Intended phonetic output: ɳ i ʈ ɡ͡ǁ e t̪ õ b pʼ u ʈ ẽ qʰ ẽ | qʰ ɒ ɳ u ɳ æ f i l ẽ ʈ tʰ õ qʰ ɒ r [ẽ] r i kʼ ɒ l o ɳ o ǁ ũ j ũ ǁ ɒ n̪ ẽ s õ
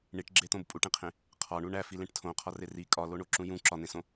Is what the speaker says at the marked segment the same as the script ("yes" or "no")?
no